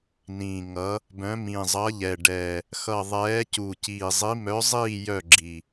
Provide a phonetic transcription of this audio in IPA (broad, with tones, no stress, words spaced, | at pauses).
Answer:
nĩ˨˩ŋʌ˨˦ | bœ̃˨˦mĩ˨˩zˤʌ˨˦ʎɛ˨˩ ɖɛ˨˩ | xʌ˨˩ ðˤɛː˨˦cu˨˩ciː˨˩zˤi˨˦ mœ˨˦zˤiː˦˨ jœ˦˨ ɡ͡ǁi˨˩